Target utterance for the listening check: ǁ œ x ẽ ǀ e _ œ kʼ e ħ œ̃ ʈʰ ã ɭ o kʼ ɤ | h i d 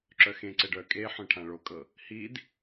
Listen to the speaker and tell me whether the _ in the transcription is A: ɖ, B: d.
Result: A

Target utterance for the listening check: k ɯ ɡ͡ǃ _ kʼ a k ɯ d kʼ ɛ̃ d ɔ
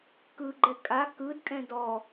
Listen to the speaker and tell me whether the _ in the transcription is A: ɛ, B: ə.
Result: A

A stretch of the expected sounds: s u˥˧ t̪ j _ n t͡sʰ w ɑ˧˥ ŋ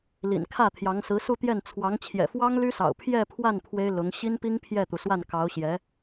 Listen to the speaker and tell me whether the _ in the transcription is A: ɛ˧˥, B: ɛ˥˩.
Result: B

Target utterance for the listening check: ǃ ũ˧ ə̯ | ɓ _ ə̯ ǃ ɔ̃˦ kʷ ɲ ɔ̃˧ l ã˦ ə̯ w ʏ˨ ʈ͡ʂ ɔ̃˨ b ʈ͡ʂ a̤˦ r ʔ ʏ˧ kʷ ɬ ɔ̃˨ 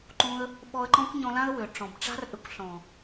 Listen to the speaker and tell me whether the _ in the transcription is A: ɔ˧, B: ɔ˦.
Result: A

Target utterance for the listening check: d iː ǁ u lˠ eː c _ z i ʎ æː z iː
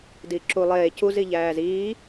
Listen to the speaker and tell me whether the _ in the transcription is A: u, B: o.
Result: A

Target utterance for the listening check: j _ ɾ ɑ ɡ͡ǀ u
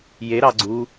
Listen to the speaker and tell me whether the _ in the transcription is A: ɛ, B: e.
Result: B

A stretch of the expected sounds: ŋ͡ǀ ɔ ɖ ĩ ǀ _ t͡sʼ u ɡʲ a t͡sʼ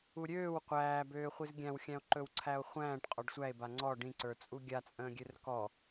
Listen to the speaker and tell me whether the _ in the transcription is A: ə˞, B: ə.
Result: A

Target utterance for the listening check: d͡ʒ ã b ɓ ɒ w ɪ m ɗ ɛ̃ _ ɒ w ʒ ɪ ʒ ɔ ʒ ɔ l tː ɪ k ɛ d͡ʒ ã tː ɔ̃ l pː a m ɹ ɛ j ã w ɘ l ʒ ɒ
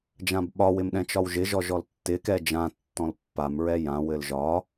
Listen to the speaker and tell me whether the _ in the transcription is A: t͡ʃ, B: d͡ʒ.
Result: A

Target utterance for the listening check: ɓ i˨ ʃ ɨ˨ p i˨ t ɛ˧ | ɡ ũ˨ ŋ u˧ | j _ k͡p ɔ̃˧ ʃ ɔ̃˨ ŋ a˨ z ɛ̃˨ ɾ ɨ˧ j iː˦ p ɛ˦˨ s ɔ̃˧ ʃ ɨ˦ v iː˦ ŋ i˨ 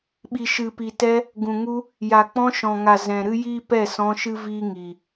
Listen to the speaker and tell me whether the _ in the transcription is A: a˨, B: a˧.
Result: A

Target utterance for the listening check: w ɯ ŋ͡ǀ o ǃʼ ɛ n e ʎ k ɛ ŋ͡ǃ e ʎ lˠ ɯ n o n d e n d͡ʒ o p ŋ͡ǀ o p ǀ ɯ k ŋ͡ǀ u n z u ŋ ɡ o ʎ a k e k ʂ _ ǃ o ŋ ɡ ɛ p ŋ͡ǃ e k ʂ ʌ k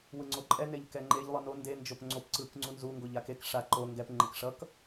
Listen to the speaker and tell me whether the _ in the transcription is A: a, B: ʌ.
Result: A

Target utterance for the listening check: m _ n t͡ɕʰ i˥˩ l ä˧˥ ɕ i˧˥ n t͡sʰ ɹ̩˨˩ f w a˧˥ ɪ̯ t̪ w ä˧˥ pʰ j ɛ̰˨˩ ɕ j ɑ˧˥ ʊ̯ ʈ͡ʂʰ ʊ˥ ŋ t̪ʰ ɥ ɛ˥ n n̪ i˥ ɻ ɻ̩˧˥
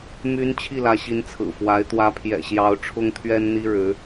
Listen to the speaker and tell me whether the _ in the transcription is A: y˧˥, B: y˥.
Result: A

